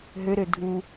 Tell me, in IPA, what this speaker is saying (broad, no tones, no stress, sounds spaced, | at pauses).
ɦ ø ɾ ø dʱ u